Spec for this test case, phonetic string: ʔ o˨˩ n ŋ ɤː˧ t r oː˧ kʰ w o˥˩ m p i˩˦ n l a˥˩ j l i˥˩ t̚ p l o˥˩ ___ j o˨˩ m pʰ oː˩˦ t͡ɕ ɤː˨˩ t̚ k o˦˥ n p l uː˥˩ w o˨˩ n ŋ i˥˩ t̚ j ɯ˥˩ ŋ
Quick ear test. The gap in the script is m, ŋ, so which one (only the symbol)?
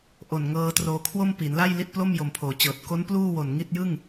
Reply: m